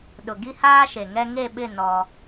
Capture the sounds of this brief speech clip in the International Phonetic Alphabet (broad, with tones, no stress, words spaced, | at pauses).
ɗʊ˨ ɡi˦haː˦ʃe˨ŋɛ˦ ŋe˦˨ɓɪ˦˨ nɔ˦